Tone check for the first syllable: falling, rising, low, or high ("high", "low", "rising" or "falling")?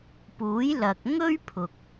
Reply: rising